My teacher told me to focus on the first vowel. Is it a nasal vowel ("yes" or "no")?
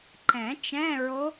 yes